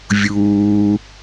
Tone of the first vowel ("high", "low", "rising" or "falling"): low